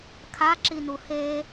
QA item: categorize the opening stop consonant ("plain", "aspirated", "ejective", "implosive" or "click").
aspirated